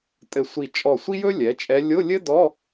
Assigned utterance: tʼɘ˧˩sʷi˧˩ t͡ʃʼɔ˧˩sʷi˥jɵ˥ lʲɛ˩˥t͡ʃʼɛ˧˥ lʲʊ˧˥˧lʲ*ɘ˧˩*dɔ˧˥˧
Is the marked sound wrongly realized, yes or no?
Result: yes